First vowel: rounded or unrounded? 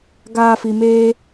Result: unrounded